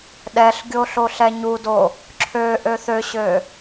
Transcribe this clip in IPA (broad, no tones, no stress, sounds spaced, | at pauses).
ɗ ɛ ɬ ɡʲ o ɬ o ɬ ɛ ɲ u d o | ǁʰ ø ʔ ø θ ø ɕ ø